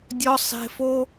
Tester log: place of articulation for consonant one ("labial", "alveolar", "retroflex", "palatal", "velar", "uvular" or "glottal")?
alveolar